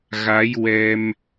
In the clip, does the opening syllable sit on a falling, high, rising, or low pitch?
rising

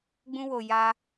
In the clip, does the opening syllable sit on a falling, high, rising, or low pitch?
high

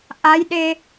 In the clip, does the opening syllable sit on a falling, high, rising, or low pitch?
rising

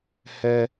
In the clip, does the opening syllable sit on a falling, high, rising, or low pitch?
high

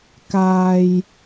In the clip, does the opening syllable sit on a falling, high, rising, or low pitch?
low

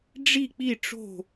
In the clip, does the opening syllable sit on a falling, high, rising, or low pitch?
falling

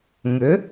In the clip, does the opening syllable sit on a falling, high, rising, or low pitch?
rising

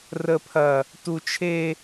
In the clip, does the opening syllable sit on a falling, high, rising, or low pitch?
high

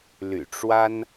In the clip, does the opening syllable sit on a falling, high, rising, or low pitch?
low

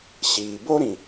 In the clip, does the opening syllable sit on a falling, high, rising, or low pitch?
low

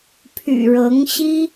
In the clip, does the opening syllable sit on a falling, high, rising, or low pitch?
low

